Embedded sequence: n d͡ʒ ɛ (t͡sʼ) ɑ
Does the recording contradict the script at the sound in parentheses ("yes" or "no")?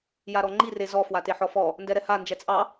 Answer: no